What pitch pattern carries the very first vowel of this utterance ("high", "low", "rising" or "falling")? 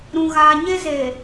high